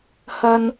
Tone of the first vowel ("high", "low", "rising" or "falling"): high